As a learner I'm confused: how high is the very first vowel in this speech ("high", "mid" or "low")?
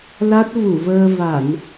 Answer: low